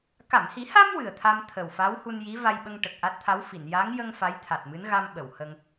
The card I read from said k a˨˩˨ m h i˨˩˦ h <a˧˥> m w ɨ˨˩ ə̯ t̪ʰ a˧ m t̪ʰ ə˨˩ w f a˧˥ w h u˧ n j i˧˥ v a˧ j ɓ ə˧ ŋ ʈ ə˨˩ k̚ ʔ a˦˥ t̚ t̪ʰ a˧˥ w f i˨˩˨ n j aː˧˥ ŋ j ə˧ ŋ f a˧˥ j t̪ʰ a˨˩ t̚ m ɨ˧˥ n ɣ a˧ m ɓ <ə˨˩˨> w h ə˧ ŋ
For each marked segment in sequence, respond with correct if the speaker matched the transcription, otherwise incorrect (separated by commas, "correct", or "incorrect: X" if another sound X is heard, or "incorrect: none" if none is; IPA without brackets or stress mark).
incorrect: a˧, correct